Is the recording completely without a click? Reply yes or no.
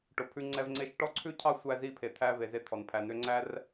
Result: no